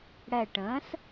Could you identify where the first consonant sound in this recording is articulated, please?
retroflex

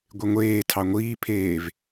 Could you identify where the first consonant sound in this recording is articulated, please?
velar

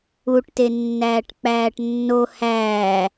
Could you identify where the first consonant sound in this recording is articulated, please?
retroflex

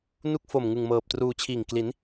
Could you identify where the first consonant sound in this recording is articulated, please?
alveolar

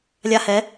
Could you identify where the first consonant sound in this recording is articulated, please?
alveolar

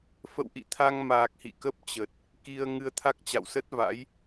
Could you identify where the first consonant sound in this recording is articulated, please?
labial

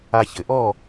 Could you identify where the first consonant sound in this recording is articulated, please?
palatal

